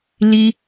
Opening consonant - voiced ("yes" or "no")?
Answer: yes